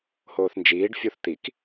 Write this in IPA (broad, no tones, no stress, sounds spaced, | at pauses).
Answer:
h oː θ n d͡ʒ iː ɖ fʲ u θ t̪ i k